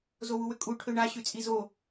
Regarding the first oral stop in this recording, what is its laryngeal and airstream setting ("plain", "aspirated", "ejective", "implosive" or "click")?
ejective